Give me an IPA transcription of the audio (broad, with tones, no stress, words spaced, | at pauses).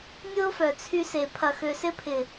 nʲʊː˦fœ˨ t͡sʰy˧se˨ pʰɐ˨xø˨sɪ˧pʰɪ˨